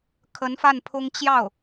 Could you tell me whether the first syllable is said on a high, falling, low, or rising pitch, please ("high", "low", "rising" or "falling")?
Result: rising